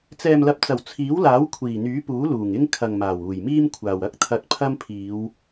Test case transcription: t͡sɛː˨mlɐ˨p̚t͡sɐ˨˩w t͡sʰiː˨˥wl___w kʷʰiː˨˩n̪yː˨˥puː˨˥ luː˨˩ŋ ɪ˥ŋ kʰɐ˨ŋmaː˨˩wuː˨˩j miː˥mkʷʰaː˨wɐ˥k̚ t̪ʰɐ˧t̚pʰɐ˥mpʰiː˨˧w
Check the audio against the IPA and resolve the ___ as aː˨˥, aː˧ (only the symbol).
aː˨˥